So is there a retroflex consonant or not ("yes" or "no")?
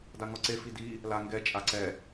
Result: no